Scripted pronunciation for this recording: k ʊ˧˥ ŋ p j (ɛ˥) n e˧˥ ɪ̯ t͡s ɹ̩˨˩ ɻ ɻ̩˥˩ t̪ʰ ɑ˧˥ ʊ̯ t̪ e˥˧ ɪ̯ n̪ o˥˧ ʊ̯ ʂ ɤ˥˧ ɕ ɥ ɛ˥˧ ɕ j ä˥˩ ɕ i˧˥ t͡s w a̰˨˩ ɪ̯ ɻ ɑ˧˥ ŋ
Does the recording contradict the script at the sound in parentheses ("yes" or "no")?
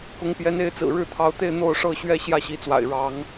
yes